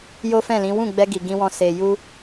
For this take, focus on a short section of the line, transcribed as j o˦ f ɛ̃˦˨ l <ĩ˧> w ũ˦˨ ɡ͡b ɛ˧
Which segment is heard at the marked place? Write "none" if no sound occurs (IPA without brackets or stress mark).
ĩ˨˦